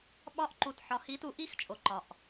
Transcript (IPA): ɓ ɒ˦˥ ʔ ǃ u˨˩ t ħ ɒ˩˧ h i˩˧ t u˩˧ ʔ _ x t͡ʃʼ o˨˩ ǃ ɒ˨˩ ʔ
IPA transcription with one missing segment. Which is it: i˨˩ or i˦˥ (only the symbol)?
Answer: i˦˥